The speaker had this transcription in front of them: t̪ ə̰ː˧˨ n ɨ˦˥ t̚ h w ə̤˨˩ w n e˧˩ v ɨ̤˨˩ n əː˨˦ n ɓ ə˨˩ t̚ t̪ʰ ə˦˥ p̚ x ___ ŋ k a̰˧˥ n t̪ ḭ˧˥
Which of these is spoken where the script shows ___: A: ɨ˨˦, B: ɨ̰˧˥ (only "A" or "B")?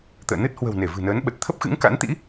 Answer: B